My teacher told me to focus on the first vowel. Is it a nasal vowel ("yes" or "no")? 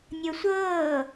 no